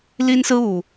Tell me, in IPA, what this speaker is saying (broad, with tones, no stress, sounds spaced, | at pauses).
l i˦ n s ɹ̩˦ u˨˩